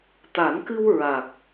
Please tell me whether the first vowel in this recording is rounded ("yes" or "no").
no